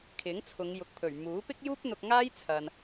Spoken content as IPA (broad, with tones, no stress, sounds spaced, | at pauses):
kʰ ɪ˨˥ ŋ t͡sʰ ʊ˨˧ ŋ j ʊ˨ k̚ pʰ ɵ˨˩ ɥ m uː˨˥ p ɪ˥ k̚ j uː˥ p̚ n̪ ʊ˧ k̚ ŋ aː˥ j t͡sʰ ɐ˨ n